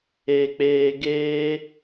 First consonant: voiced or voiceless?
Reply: voiceless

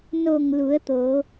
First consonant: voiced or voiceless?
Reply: voiced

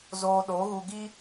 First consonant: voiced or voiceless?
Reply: voiced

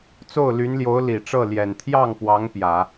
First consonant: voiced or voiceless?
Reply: voiceless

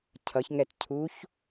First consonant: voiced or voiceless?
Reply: voiceless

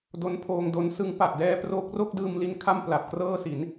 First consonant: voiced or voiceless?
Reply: voiced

